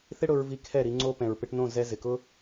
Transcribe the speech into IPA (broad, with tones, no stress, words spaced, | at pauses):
θɪ˦ ɽʊ˧ɹ vi˧kʰɛ˦˨ ɾi˧ ŋ͡ǀo˧ pɛ̃˨ɹpɪ˧ʈnõ˦˨ zɛ˧ zɪ˨kʊ˦